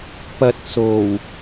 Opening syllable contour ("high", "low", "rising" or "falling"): low